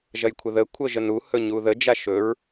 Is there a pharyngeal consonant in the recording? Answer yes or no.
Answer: no